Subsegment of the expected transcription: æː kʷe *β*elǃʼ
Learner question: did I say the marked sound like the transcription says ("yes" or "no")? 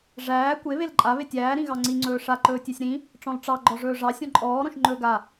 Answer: yes